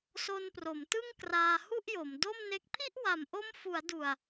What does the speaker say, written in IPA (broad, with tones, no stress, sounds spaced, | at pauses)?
s o˧ n p r o˩˦ m t ɯ˥˩ ŋ k r aː˧ h u˥˩ ʔ j o˩˦ m d o˥˩ m n e˦˥ k̚ pʰ i˥˩ ʔ w a˨˩ m ʔ o˦˥ m f u˩˦ a̯ d u˨˩ a̯